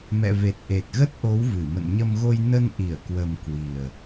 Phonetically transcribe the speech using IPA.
m ɛ̰˧˨ v e˨˩ t̚ ʔ e˨˩ t̚ ɣ ə˦˥ t̚ ʔ o˨˦ w v ɨ˧˩ m ə̰˧˨ n ɲ ə˧ m ɣ o˧ j n ə˧ n ʔ i˧˩ ə̯ k w ə˨˩ m k w i˨˩ ə̯

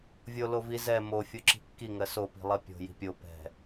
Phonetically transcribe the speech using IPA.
vʲ o l o v i z ɛ m o fʲ o ǁ i̤ kː i ŋ ɜ s o p i̤ lˠ ɜ pʲ o̤ j i̤ pʲ o p ɛ̤

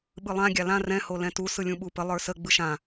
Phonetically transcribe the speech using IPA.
ɓ ɯ lˠ ã ɡʲ a l ã r ɛ̃ h o l ɛ̃ t u s ɯ lʲ ũ ɓ u p ə lˠ ə˞ s ə ɡ͡b ɯ ʃ ã

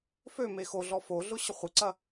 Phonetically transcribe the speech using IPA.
f ø m e x o ɮ ɔ f o ɮ ʊ ɕ ə χʷ ɪ ǀ ɐ

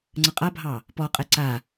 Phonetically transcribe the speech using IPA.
ŋ͡ǀ ə qʼ a bʱ ɑ | p ɔ qʼ ɛ ǀ a

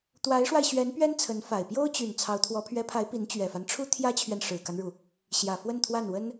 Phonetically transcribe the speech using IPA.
t̪ w a˧˥ ɪ̯ ʂ w a˧ ɪ̯ ɕ ɥ ɛ˧˥ n p ɥ ɛ˥ n t͡sʰ ə˧˥ n f a˨˩ ɪ̯ p j o˥ ʊ̯ t͡ɕ y˨˩ n t͡sʰ ɑ˧˥ ʊ̯ t̪ʰ w ɔ˧˥ pʰ ɥ ɛ˧˥ pʰ a˧˥ ɪ̯ p i˧˥ n t͡ɕ ɥ ɛ˨˩ f a˦ n ʈ͡ʂʰ u˥ t̪ʰ j ä˥ t͡ɕʰ ɥ ɛ˨ n ʂ ɻ̩˨˩ k a˦ n ɻ u˩ | ɕ j ä˨˩ f w ə˥˧ n t̪ʰ w a˥˩ n w ə˥ n

